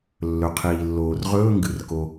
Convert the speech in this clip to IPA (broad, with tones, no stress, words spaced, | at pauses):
lːɵ˩qʰiː˩lːoː˩r ʁɵː˧˥˧ŋɡɨ˩rko˩